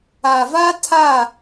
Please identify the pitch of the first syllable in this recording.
low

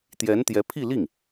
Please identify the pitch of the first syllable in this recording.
rising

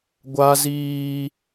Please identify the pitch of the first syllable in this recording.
high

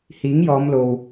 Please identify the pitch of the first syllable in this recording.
rising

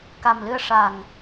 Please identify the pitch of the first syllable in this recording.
low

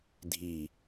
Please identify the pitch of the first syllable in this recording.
falling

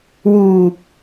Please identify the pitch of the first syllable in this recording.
low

